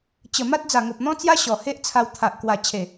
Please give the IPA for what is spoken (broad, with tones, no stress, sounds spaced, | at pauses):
t͡ɕ ə˨˩ m a˦ t̚ d͡z a˨˩ ŋ o˨ p̚ n̪ ɔ̃˦ t͡s j a˦ ɕ ɔ˨˩ h e˦ ʔ t͡sʰ a˧ w t̪ʰ a˨ ʔ k w a˨˩ t͡ɕʰ e˨˩